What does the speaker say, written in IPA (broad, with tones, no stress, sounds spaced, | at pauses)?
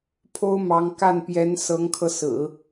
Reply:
pʰ o˥ ʊ̯ m ɑ˧˥ ŋ k a˥˩ n p j ɛ˧˥ n s ɤ˧˥ ŋ kʰ ɤ˧ s ɹ̩˨˩˦